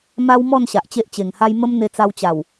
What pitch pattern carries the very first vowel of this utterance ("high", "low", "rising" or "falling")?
high